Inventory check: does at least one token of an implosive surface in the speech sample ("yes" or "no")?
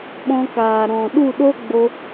yes